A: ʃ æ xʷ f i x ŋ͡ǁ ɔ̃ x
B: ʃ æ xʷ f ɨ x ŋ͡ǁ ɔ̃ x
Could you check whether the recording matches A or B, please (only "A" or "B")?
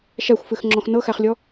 B